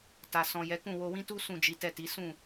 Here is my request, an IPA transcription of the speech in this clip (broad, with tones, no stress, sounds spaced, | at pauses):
t a˨ s ɔ̃˨ j ɛ˨˦ k ũ˦˨ w o˧ w ĩ˦ t u˦ s ũ˦˨ d͡ʒ i˨˦ t ɛ˦˨ t i˨˦ s ũ˦˨